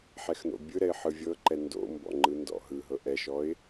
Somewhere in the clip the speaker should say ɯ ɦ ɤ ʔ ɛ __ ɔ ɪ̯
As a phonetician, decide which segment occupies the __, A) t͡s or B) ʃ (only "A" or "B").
B